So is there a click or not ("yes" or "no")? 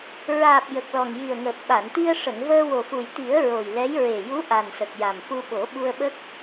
no